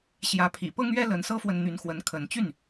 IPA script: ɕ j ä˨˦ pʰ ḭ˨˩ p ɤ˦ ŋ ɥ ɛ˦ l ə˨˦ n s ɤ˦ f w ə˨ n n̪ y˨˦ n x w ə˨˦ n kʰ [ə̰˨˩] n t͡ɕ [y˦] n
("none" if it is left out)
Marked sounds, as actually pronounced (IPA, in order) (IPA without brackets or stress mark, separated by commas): ə˨˦, y˥˨